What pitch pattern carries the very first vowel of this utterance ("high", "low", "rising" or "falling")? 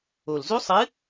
low